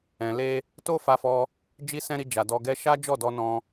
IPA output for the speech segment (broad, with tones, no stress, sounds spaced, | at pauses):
ɛ̃˨ l e˧ | t o˦ f a˧ f ɔ˧ | d͡ʒ i˦ s ɛ̃˦ ɾ i˧ d͡ʒ a˨ d ɔ˨ ɡ ɛ˧ ʃ a˦ d͡ʒ ɔ˦˨ d ɔ˧ n ɔ̃˧